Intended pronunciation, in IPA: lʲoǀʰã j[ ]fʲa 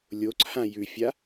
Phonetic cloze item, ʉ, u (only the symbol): ʉ